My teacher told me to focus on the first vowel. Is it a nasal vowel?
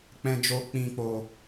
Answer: yes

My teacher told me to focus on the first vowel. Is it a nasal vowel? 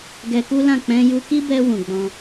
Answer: no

